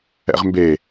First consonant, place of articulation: uvular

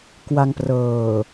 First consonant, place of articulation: velar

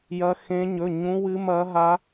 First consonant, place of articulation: palatal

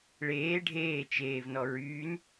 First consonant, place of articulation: retroflex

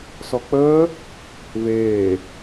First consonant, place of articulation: alveolar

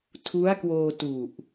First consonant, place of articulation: alveolar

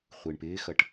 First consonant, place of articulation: uvular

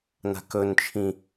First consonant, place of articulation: alveolar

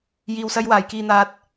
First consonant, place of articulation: palatal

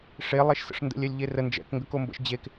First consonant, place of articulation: retroflex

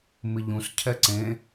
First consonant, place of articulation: labial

